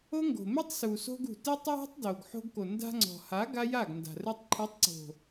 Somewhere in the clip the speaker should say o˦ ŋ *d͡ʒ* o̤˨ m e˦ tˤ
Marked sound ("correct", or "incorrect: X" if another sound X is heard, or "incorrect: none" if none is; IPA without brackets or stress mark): incorrect: ɡ